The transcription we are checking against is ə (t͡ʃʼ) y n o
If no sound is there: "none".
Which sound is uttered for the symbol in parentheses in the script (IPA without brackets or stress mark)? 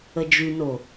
d͡ʒ